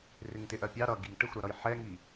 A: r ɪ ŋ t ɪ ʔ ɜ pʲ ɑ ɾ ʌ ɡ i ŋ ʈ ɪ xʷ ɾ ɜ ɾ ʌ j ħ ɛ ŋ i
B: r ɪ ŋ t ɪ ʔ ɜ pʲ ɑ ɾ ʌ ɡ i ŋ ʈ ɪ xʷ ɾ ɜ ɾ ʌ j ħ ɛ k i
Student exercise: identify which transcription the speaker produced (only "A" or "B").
A